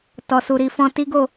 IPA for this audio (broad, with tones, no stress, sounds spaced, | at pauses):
t ɔ˨ s u˨ ɾ i˨ f ɔ̃˧ t i˦ ɡ o˦˨